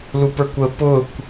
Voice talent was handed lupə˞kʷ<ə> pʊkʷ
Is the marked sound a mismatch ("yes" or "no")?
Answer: no